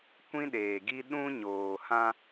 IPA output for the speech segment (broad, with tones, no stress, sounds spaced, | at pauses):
kʷ ĩ˦ ɗ eː˨ ɡ i˦ ɗ ũ˦ ɲ oː˨ h ã˦